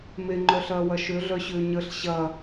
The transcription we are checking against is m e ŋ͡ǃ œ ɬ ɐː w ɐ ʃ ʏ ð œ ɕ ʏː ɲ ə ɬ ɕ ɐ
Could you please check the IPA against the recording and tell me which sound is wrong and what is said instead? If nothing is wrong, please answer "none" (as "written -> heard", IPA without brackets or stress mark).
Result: ð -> ɮ